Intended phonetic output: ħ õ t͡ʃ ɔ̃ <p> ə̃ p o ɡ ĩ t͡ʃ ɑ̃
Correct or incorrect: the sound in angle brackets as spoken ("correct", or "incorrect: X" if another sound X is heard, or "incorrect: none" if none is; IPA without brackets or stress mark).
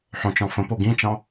incorrect: f